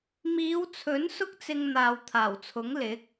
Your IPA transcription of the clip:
miː˨˧wt͡sʰɵ˨˥n sʊ˥k̚t͡sɪ˧ŋ n̪aː˨wt̪ʰaː˨˩wt͡sʰʊ˨˥ŋ lɪ˨˥k̚

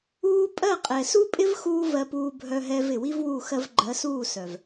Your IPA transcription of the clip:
uː˦ pʼɜ˦˨qʼɛ˨su˦pʼɪ˦v xuː˦vɜ˧ puː˧bʱœ˧ɦɛ˧v ɪ˨wi˦vwu˦˨ xɜ˧vɡ͡ǃɜ˨˦suː˦˨sœ˨v

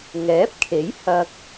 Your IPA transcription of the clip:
ŋɛː˨˥p̚kʰe˨˥j hɐ˧k̚

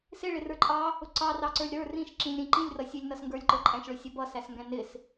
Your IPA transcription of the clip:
sɪɭɪrə˞ǃʼɑ | ʊǀɑ rɑǀə˞lʲɾə˞ rĩʃ ǁĩlʲɾĩ ǃĩlʲrʌsʲɛlʲnʌs ŋɡə˞lʲǃə˞ǃʼæ̃ʃɭʊ sʲʌbʌsæsŋɡæ̃ nɪs

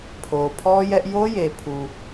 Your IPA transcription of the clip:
pʰo˨pʰɔ˦jɛ˦ʔ jo˦je˨pʰu˨

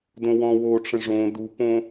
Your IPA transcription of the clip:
dõwɔ̃wo ʈ͡ʂə̃ʐõ dupõ

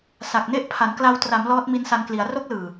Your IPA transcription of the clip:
sa˨˩k̚ne˦˥ʔ pʰa˩˦nkla˧w tra˩˦m lɔː˦˥t̚mi˦˥nsa˧nkli˩˦a̯ ro˦˥k̚lɯː˨˩

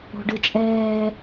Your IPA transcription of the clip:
o̤ɖɯt͡ʃʼɛː

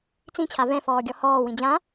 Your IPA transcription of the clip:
t͡sĩt͡ɕʰa vɛ̃fɔːɡʲɔ hɔːwĩ d͡ʑã

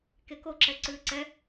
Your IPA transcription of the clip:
kekoǁɛ ǀʉːǀɛ

